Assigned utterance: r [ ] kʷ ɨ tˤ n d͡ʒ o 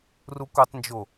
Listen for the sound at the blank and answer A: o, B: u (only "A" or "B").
B